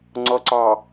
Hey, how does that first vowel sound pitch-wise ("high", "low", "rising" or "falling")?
low